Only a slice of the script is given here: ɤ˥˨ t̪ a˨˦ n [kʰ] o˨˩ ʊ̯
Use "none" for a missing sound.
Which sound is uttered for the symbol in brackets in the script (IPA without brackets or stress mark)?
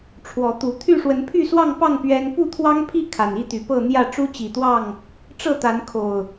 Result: kʰ